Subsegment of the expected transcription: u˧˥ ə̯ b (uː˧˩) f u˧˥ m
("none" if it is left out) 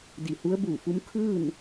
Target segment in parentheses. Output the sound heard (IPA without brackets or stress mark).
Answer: uː˧˩